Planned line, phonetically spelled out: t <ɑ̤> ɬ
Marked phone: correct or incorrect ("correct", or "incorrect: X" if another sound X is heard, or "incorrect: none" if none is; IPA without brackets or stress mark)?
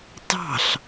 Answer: correct